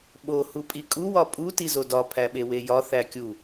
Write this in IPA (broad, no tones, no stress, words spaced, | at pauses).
ɓo hupʼikʼu wɒpʼu tizodɒ pʰæɓewejɒ θækʲu